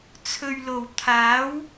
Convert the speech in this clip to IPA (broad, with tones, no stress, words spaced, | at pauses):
t͡sʰɵ˨ɥlo˨˩w t̪ʰaː˨˥w